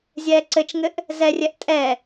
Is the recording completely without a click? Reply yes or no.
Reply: no